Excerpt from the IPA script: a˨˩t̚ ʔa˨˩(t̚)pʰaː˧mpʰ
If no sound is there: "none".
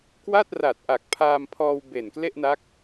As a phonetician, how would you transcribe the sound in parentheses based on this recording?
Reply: k̚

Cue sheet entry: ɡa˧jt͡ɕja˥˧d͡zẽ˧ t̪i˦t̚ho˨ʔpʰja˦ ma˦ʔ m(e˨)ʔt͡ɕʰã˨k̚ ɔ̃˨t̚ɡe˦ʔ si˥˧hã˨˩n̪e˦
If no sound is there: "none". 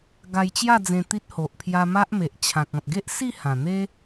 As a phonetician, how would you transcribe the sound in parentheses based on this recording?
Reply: e˨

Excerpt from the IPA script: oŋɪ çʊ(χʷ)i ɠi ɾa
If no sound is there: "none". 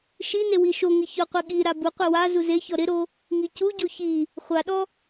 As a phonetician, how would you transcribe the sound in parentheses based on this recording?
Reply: qʷ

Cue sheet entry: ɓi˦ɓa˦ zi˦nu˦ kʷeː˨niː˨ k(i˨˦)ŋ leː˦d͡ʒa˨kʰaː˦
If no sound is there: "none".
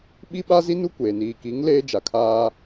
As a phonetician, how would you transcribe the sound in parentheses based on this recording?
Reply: i˨˦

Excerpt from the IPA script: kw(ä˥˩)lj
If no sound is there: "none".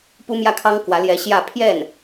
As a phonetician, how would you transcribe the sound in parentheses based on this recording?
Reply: ä˧˥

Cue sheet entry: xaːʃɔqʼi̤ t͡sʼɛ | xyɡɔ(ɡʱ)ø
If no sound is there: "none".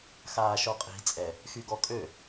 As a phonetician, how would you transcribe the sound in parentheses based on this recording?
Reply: kʼ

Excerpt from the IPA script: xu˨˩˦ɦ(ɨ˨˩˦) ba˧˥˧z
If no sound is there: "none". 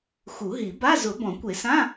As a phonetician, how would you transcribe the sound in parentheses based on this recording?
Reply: i˨˩˦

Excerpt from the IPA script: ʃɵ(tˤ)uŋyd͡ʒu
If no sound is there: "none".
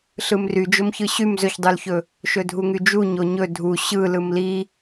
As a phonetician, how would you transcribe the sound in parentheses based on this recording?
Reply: dʱ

